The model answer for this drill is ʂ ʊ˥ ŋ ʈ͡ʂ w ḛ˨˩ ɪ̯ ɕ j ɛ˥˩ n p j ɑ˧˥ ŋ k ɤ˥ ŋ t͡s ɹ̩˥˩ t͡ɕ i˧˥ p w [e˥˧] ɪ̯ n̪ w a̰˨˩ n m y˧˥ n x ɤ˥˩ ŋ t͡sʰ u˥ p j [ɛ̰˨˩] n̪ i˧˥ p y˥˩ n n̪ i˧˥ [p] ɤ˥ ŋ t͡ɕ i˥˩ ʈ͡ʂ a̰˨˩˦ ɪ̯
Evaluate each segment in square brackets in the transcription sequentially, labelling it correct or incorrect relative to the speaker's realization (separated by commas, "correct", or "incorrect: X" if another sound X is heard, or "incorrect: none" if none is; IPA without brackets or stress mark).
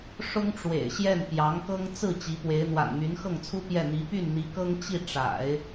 incorrect: e˧˥, incorrect: ɛ˥˩, incorrect: k